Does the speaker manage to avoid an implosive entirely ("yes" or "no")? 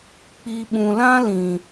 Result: no